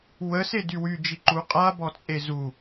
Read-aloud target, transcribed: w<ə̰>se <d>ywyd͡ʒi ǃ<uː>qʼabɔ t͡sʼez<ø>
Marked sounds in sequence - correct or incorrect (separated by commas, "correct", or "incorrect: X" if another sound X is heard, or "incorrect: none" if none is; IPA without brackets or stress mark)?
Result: incorrect: ə, correct, incorrect: u, incorrect: u